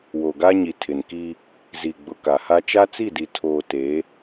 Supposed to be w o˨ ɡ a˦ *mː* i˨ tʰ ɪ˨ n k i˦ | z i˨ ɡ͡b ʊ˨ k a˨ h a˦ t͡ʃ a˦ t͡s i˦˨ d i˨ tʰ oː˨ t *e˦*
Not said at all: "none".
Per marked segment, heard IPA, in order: ɲ, e˨˦

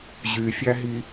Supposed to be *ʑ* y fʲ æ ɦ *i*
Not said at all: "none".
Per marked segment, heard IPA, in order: ʑ, i

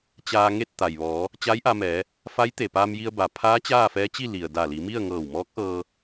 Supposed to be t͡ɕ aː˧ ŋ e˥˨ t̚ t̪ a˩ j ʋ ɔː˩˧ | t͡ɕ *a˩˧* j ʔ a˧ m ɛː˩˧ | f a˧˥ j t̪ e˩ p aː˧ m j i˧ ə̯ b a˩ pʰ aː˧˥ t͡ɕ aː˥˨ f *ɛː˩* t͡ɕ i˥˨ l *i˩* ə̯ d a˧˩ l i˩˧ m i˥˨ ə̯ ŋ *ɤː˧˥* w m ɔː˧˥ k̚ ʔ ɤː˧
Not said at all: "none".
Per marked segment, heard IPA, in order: a˧˥, ɛː˧˥, i˩, ɤː˧˩

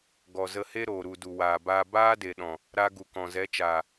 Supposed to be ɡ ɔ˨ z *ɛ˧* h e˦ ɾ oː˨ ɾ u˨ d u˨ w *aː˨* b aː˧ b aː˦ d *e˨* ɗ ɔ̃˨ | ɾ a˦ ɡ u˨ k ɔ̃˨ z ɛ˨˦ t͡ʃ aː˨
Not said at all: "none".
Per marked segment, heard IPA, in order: ə˧, aː˨, e˨

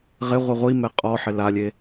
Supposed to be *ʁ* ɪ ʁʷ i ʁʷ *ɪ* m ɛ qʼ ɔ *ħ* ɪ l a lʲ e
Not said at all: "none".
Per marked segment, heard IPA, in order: ʁ, i, ħ

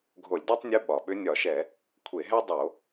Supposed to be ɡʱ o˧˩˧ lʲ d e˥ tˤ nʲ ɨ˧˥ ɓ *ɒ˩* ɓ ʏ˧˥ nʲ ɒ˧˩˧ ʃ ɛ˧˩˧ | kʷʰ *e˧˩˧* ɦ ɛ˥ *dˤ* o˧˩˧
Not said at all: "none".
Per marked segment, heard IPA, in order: ɒ˩, e˧˩˧, dˤ

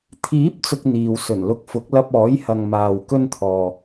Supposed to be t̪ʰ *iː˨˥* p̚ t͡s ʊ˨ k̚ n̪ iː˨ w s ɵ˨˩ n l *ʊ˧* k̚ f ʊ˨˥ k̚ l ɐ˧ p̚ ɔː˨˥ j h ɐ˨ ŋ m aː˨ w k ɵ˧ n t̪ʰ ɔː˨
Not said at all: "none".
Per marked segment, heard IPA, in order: iː˨˥, ʊ˧

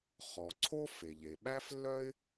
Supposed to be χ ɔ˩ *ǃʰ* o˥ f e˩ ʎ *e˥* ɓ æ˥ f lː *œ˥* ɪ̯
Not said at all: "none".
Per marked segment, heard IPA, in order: ǀʰ, e˩, œ˥

